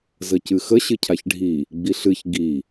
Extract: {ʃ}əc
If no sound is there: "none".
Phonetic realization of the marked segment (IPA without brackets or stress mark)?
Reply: z